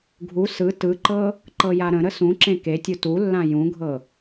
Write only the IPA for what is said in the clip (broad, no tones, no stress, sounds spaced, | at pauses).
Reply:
ɡʱ u s ɯ t ɯ ǃ ɤ | ǃ ɤ j a ɾ ə̃ ɾ ə s ũ ǁ ẽ k e tʲ u t u lː ã j ũ ɡʱ ɤ